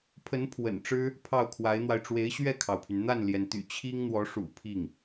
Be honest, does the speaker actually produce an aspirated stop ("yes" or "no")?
yes